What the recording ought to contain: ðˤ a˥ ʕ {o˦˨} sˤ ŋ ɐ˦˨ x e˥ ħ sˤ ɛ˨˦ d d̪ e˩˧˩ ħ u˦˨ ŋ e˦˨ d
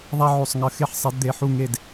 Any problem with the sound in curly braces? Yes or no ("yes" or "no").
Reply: no